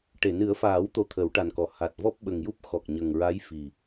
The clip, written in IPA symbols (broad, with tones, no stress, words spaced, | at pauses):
ʈe˨˩˨ nɨ˨˩˦ə̯faː˨˩˦w t̪o˧˥t̪ʰə˨˩˦wʈa˨˩nkɔ˨˩˨ ha˨˩t̚ vɔ˦˥p̚ɓə˨˩ŋju˦˥p̚ xɔ˨˩k̚ɲə˨˩ŋɹa˧˥j fi˨˩